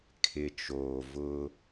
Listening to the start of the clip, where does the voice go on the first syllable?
low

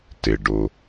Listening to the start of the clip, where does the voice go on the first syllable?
low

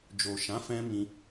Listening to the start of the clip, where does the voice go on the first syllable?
low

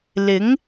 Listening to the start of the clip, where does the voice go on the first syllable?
rising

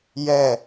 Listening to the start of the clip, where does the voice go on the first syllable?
falling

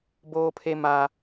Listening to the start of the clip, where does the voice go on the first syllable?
high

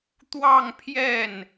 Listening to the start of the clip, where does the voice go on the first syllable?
falling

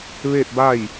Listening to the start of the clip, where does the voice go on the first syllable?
falling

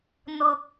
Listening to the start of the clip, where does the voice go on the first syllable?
high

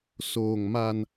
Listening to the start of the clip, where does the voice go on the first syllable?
low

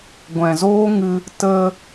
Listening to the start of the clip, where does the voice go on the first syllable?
low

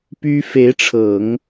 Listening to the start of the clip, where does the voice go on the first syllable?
high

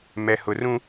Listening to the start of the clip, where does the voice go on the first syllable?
low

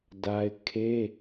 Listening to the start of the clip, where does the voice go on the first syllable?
high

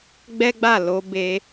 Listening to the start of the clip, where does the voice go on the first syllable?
high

